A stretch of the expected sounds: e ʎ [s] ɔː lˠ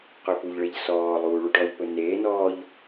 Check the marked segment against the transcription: correct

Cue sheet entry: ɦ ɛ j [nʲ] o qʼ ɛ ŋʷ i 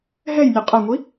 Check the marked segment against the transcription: correct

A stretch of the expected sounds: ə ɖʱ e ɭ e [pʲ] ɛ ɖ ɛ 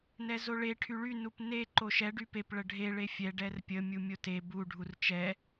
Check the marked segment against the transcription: incorrect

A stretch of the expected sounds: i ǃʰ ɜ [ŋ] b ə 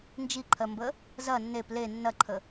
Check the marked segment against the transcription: incorrect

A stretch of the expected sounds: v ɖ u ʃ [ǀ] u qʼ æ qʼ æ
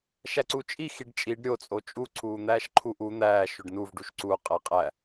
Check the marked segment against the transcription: correct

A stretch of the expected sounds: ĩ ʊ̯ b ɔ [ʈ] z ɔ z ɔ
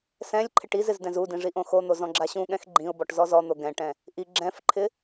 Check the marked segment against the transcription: correct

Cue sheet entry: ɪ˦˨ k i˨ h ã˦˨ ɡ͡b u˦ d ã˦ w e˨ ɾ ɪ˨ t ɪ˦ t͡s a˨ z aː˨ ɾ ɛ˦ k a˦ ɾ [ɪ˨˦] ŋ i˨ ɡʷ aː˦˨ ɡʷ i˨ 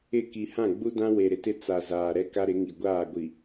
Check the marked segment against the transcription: correct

